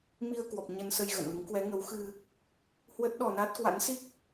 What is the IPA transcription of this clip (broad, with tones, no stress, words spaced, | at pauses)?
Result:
mi˧ə̯kwɔ˨˩p̚ ɲə˧nsə˧jɣə̰˧˨nlɨ˨˦ŋ kwɛ˨˦ŋə˨˦wxɨ˧ | hwə˦˥t̚ɗɔ˧na˦˥t̚ kwa̰˧˥nsi˦˥k̚